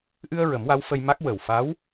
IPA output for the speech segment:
ʔ ɨ˧ ə̯ ɹ ə˨˩˦ m w a˧˥ w f ə˧ j m a˦˥ k̚ w ə˨˩ w f a˧˥ w

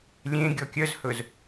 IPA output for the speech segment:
lʲ ẽ ɡʲ ɔ kʲ œ z h ɵ z

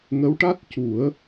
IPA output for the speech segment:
ŋ ə˧˥ w ʈ a˦˥ t̚ c u˨˩˦ ə̯

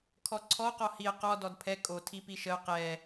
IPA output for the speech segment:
kʰ ɔ ǀʰ ɔ q ɔ h i ə̯ q ɔ d ɔ d pʰ ɛ kʼ o tʰ i p i ʃ ə ʊ̯ q ɛ

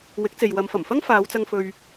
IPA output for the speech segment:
w ɪ˨˥ k̚ t͡s e˨ j w ɐ˨˧ m f ɐ˨˩ m f ɐ˥ ŋ f aː˨˧ w t͡s ɐ˧ ŋ f ɵ˧ ɥ

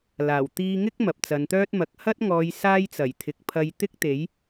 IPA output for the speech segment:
l aː˨˩ w t̪ iː˧ ŋ ɪ˥ k̚ m ɐ˨ p̚ t͡s ɐ˨˧ n t̪ œː˥ t̚ m ɐ˨˥ k̚ h ɐ˥ t̚ ŋ ɔː˨˧ j s aː˥ j t͡s ɐ˨˩ j t̪ʰ ɪ˨˥ k̚ pʰ ɐ˧ j t̪ ɪ˥ k̚ t̪ e˨˥ j

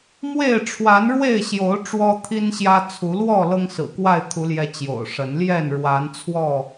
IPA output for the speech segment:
m w e˥˨ ɪ̯ ʈ͡ʂʰ w a˨˦ n ɻ w e˥˨ ɪ̯ ɕ j o˨˦ ʊ̯ ʈ͡ʂ w ɔ˦ t̪ʰ i˦ n ɕ j ä˦ t͡sʰ u˨˦ l w ɔ˥˨ l ɤ˦ ŋ s ɹ̩˨˩ k w a˥˨ ɪ̯ t̪ʰ u˨˦ l j ɛ˨˦ t͡ɕ j o̰˨˩ ʊ̯ ʂ ə˨˦ n l j ɛ˥˨ n ɻ w a˨˦ n t͡sʰ w ɔ˥˨

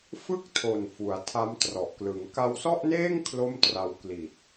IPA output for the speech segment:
f ɯ˥˩ k̚ tʰ o˨˩ n f u˩˦ a̯ tʰ a˦˥ m t r ɔ˨˩ ʔ k l ɯ˩˦ ŋ k a˧ w s ɔ˥˩ ʔ n eː˥˩ ŋ kʰ l o˥˩ m t r a˧ w k l i˨˩ t̚

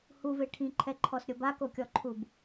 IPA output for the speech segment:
h u v e ʈʰ ĩ ǃʰ ɛ ǃʰ ɔ s ɾʲ o b a k o kʲ ɔ ǃʰ u b

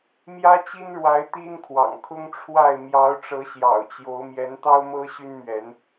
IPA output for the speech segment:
m j ä˦ t͡ɕ i˦ n ɻ w a˨˦ ɪ̯ t̪ i˦ n kʰ w ɑ̰˨˩ ŋ kʰ ʊ˦ ŋ ʈ͡ʂʰ w a˥˨ ɪ̯ m j ɑ˨˦ ʊ̯ ʈ͡ʂ ɤ˨˦ ɕ j ɑ̰˨˩ ʊ̯ t͡ɕ j o˨˦ ʊ̯ m j ɛ˨˦ n t̪ ɑ˦ ʊ̯ m ɤ˦ ɕ y˦ n m ɥ ɛ˨˦ n

